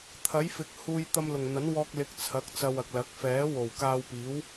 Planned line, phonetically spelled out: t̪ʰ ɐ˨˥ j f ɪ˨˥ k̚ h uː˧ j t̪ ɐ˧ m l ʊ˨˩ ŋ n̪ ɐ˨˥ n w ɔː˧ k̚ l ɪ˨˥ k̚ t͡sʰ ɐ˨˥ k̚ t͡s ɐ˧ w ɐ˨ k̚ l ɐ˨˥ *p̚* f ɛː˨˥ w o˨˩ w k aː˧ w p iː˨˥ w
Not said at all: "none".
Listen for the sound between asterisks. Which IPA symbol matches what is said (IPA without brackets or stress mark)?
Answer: k̚